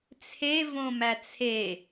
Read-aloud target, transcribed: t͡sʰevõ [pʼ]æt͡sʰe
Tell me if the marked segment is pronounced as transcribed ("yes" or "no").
no